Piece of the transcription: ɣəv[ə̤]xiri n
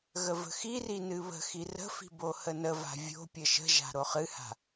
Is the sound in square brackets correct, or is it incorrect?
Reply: correct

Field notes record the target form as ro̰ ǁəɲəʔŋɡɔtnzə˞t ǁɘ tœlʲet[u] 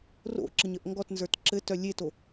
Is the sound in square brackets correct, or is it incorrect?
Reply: incorrect: o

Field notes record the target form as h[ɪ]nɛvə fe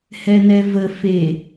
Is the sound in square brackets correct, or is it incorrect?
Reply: incorrect: ɛ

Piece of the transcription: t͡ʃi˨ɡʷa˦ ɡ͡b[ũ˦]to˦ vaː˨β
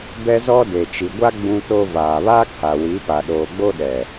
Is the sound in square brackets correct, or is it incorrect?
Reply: correct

